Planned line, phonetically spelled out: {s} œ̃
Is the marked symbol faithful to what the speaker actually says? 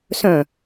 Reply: yes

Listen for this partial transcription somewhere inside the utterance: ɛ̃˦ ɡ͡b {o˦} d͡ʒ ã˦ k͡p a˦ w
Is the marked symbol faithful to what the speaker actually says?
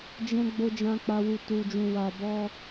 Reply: yes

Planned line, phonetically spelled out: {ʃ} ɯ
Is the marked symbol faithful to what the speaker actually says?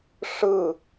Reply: no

